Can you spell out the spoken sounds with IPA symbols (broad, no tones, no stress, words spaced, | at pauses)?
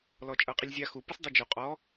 lɔt͡ʃʼɤqʼilʲzʲa xu pɯsdˤud͡ʒu qʼɔ